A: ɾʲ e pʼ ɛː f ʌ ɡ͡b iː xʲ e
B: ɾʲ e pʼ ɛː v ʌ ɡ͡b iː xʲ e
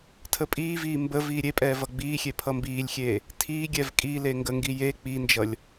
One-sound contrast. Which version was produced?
B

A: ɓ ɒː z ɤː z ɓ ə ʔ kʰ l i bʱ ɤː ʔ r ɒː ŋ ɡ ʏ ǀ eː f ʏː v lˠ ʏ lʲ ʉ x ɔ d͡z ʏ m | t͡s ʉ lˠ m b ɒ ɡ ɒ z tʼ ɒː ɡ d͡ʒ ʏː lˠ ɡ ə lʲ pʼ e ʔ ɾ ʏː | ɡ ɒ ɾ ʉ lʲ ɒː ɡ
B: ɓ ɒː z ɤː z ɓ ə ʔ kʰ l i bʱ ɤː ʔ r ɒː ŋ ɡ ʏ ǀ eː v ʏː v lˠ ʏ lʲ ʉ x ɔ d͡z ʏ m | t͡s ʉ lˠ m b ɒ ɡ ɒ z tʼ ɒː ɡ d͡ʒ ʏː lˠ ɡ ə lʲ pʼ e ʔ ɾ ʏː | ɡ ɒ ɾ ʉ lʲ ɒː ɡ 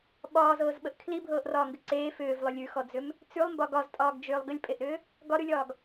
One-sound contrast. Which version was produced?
A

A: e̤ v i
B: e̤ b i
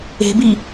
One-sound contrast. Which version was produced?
B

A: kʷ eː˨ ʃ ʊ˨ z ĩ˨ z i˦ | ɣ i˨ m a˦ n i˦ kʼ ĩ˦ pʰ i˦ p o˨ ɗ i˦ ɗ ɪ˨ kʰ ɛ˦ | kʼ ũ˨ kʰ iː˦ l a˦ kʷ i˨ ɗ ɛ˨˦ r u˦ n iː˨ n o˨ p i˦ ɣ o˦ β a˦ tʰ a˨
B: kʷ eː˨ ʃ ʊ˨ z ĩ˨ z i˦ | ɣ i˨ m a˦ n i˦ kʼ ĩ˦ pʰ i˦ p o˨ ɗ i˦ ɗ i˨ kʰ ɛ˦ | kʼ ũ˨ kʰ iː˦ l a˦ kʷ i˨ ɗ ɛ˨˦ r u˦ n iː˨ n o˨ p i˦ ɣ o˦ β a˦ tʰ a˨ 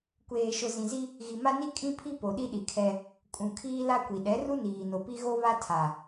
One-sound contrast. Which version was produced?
B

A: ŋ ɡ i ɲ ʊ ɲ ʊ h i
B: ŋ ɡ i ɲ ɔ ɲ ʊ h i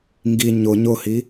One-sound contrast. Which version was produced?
A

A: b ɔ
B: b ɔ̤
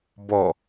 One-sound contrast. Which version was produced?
A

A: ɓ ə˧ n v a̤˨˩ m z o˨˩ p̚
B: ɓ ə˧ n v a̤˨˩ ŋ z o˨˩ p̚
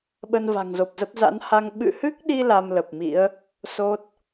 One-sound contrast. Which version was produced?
B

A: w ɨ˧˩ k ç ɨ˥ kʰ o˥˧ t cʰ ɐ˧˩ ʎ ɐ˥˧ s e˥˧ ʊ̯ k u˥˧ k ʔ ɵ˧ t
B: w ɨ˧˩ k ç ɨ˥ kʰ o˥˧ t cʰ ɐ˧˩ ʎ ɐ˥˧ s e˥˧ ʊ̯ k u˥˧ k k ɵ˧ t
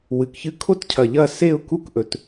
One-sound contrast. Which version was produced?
A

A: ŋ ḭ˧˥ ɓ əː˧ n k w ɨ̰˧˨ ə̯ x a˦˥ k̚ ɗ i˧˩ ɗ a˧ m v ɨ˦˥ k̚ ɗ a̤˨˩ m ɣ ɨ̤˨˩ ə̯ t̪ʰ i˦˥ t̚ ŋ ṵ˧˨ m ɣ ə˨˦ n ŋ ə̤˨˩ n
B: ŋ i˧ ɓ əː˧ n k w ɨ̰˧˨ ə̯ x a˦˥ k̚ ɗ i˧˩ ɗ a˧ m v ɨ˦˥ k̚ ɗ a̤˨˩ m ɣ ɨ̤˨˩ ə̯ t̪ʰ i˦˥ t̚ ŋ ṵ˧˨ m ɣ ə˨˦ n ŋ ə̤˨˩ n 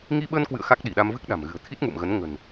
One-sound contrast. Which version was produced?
B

